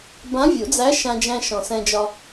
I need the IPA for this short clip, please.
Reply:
b ã˧˥ vʲ u˨˩˦ d͡z æ˧˥ ʃ ã˧ d͡ʒ æ̃˧ ʃ ɔ̃˨˩ s ɛ̃˧ d͡ʒ ɒ˧

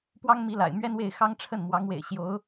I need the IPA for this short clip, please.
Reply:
p w ɑ˥ ŋ m i˧˥ l a̰˨˩ ɪ̯ m ɥ ɛ˥ n w e˥˩ ɪ̯ x ɑ˥ ŋ ʈ͡ʂʰ ə˥˩ n m w ɑ˧˥ ŋ w ḛ˨˩ ɪ̯ ɕ j o˧˥ ʊ̯

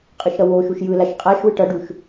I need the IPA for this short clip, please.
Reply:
qʼ ɯ ʃ ɾ ʌ w o ʃ u ʃ j ɯ l a ʃ qʼ a ʃ w ɯ ʈ ʌ ɖ u ʃ

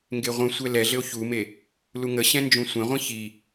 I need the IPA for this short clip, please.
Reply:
ŋ ɡ e ʁʷ ə̃ sʷ ɛ l ɛ ɮ ɘ o̯ ç u m e | l u ŋ ə ɕ ɛ̃ n d͡ʒ ũ sʷ ɛ̃ ʁʷ ĩ ç i

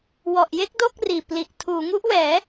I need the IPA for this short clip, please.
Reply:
w ɔ˨˩ ʔ j e˥˩ k̚ d o˥˩ k̚ r iː˨˩ p l i˨˩ ʔ tʰ uː˩˦ ŋ u˦˥ ʔ w ɛː˩˦

